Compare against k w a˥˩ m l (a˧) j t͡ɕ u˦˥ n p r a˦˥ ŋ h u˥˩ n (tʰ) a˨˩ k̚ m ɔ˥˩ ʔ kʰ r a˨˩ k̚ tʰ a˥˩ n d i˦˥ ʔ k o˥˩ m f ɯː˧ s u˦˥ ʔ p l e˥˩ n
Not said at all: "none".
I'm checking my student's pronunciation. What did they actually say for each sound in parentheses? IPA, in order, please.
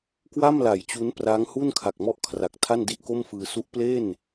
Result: a˩˦, kʰ

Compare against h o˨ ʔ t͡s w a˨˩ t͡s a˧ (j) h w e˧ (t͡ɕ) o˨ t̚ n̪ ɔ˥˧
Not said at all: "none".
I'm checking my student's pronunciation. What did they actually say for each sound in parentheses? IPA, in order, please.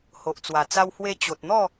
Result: w, t͡ɕ

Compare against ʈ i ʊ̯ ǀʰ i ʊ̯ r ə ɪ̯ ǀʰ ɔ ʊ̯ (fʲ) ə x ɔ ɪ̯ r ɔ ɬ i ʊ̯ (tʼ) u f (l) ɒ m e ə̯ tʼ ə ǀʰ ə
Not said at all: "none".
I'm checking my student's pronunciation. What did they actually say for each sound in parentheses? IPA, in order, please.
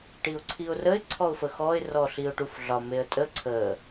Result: f, ʈ, ɮ

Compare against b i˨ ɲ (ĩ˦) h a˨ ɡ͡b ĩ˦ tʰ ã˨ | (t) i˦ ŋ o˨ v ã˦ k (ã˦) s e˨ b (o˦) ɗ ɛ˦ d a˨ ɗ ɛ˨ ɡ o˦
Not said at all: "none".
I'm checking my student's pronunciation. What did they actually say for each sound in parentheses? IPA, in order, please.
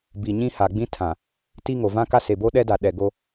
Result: ĩ˦, t, a˦, o˦

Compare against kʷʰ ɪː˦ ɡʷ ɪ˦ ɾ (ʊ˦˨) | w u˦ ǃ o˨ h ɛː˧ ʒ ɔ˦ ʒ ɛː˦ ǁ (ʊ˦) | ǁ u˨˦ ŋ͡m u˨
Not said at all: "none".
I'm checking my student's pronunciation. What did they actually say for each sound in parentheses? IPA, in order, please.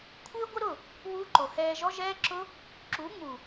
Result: ʊ˦˨, ʊ˦

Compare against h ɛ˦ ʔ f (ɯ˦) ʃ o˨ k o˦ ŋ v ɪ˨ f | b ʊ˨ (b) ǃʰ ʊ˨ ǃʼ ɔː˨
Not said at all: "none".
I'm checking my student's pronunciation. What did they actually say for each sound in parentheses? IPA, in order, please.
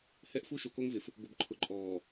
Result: u˦, b

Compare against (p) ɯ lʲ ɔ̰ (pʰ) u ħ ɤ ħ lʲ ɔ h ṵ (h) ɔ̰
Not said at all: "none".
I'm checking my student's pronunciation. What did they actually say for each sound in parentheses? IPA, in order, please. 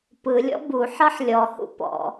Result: p, b, p

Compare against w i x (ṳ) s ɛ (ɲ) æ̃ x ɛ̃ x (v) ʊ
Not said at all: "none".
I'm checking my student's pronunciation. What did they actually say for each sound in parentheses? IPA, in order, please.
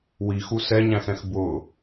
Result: u, ɲ, b

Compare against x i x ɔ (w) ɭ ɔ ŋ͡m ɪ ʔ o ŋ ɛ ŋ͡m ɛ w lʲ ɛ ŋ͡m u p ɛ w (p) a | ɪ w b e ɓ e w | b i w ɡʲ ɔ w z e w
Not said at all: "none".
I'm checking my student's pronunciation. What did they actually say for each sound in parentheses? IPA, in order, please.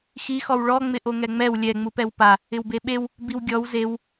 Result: w, p

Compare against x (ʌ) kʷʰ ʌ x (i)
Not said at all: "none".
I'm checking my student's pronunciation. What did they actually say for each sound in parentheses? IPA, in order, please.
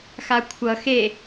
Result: a, e

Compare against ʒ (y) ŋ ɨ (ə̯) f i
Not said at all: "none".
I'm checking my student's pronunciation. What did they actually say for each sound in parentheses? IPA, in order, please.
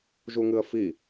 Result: u, ə̯

